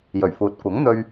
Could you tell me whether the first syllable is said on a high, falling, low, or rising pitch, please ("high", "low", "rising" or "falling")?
low